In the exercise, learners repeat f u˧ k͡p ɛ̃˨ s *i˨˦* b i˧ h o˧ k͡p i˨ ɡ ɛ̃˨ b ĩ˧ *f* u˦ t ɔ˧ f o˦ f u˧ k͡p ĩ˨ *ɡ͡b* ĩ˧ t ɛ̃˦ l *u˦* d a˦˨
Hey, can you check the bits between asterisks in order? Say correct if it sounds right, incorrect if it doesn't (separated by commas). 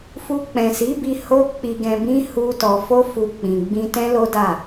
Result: correct, incorrect, correct, incorrect